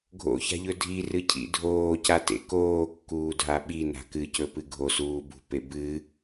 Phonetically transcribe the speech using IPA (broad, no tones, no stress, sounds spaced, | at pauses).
ɡʱ o̰ ç a̤ ʎ ɵ dʱ i r ɨ cʰ ḭ dʱ oː c a t ḛ k oː kː uː dʱ a ɓ i n a̤ k ɨ c ɵ p ɨ ɡʱ o s uː b ṳ p e b ɨ